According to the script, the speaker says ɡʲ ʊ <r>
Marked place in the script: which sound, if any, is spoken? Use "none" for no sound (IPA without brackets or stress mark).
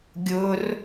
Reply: r